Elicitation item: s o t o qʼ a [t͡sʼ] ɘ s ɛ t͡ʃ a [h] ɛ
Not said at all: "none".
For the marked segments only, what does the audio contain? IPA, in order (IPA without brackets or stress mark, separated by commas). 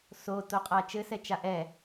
t͡ʃ, ʔ